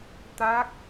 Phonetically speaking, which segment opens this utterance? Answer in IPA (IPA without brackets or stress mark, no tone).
t̪